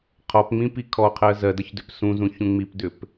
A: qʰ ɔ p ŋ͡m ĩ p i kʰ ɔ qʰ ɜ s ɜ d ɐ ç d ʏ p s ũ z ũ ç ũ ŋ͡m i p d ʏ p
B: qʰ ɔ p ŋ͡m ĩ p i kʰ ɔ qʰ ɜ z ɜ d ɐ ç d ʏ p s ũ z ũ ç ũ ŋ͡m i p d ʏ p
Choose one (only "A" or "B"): B